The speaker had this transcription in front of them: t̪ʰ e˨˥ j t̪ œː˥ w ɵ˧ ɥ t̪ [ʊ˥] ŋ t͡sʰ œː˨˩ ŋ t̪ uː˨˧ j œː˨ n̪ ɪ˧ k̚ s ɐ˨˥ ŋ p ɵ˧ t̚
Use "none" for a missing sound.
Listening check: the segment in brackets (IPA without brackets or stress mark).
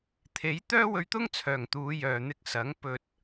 ʊ˥